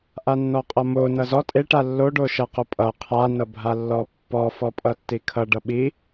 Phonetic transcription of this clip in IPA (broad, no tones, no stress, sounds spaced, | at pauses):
ʔ a nː ɔ qʼ ʌ m o n ʌ z ɔ tʼ e ʈ a lː o ɖ o ʃ ʌ q o pʼ ʌ qʰ a n ʌ bʱ a lː ɔ pː ɔ f ɔ pʼ ʌ tː i kʰ ʌ ɖ ʌ ɓ i